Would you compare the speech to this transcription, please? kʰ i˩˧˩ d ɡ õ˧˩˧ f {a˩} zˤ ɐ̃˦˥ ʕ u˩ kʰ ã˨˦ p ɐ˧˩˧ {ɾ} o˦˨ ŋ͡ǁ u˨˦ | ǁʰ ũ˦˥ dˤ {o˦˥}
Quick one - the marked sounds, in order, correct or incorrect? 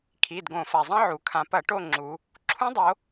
correct, incorrect, incorrect

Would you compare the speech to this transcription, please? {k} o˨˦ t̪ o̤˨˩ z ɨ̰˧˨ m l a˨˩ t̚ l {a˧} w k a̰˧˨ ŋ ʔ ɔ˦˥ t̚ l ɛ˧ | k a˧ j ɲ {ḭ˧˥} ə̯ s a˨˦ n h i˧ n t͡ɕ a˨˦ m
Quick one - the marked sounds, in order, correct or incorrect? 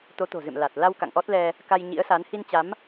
incorrect, correct, correct

